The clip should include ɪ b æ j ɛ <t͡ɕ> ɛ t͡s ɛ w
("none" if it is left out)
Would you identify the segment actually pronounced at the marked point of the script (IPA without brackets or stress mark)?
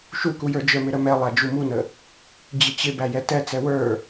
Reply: t